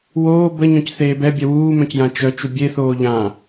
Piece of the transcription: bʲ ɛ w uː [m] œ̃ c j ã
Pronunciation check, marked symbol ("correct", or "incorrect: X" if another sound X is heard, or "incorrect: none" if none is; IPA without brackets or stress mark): correct